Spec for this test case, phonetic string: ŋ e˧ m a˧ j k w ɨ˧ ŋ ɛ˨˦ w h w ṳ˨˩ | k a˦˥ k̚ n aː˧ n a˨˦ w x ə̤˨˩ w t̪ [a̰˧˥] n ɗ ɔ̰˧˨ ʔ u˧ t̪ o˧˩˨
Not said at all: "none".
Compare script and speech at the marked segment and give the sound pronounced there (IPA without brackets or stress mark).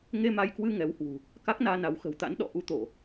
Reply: a̰˧˥